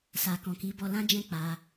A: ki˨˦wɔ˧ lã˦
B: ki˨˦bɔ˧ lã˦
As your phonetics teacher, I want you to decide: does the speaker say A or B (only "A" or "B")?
B